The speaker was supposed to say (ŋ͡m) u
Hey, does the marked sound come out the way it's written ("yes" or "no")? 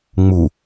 yes